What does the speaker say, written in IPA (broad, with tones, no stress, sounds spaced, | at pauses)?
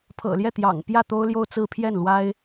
pʰ ɤ̰˨˩ l j ɛ˥˩ t̪ j ɑ̰˨˩ ŋ p j ä˥˩ t̪ o˥ ʊ̯ l j o˥˧ ʊ̯ t͡s ɹ̩˥˧ pʰ j ɛ˥˩ n l w a˥ ɪ̯